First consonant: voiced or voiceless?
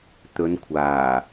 voiceless